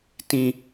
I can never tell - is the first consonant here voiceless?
yes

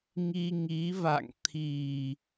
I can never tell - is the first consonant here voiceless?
no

